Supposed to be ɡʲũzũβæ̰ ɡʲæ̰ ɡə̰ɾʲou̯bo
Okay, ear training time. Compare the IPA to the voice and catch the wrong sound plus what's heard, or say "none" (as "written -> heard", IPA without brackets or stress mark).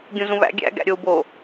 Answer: ə̰ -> æ̰